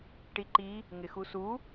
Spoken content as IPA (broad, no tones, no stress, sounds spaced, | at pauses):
ʈ i ǃ i | ŋ ɪ x u s u